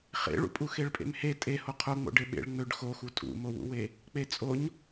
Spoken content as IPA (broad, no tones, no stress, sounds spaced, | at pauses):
χ ḛ ɭ ṵ pʼ u x e ɭ pʼ ḛ m h e tʼ e h o qʰ o ŋ͡m o̰ ɖ e ɓ ḛ ɭ ŋ͡m ø ɖ x o x u tʼ ṵ m o w ṵ w e | k͡p e t͡sʼ o ɲ